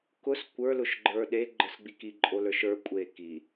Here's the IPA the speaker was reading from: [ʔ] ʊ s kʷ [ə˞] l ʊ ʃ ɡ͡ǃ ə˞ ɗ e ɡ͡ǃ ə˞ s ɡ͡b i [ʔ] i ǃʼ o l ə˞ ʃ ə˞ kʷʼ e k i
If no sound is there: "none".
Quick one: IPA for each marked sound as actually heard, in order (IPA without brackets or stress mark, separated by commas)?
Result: k, ə˞, k